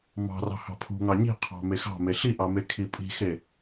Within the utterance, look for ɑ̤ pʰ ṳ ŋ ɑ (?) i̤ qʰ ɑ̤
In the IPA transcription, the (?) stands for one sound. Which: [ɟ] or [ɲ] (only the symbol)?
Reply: ɲ